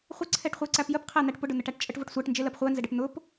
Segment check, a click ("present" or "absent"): present